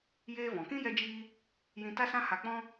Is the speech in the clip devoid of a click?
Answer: yes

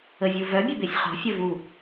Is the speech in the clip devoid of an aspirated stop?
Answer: yes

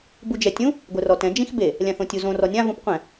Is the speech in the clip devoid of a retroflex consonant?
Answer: yes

